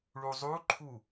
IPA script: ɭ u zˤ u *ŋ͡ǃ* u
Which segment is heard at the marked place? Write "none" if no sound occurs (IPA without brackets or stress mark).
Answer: ǃʰ